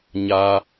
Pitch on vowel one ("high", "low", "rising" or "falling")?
high